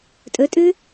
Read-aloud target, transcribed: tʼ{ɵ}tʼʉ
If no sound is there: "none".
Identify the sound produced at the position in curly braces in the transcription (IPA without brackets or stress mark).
ɵ